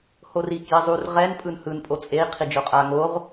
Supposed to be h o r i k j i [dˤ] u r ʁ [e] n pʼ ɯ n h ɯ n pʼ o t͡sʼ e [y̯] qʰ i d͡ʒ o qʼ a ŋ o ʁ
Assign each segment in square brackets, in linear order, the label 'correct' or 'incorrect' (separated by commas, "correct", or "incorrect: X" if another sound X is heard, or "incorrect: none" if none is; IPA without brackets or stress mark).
incorrect: zˤ, incorrect: ɛ, incorrect: i̯